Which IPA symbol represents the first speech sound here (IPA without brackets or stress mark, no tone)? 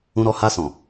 ũ